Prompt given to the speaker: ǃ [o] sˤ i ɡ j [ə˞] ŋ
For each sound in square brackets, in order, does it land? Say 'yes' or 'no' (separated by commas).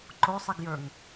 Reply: yes, yes